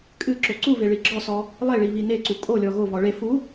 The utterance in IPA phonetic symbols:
kʼɨ ǁoǀuve ɭiɡ͡ǁɔsɔ | lˠeɭi βineǀu kʼolʲɔ ɣovɔ ɭe fu

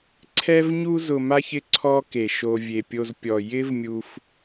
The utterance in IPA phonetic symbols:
ǀʰɛ˦vɲu˦zʊ˨ ma˥çɪ˦ ǀʰɔ˦ ke˩ʃo˨ vʲe˩pʲo˨z pʲɔ˩ jɪ˦vmʲu˨f

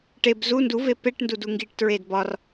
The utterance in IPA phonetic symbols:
ʈeb zu nduve peʈndu duŋɡiʈtɹed bɒr

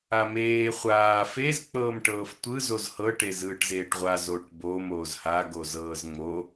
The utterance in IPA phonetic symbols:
ameː χʷaː fez k͡pɤːmʈɤːftʷɯ zozhɤ ʈezɯːʈzeːʈʁʷa zoʈbom oːzha ɡozɤːzŋ͡mo

